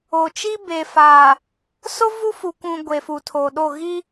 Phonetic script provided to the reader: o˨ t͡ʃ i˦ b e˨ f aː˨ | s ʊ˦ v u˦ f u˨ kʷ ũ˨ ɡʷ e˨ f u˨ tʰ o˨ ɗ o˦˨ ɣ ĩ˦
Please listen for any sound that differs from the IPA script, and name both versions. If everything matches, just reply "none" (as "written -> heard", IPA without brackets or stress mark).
ĩ˦ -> i˦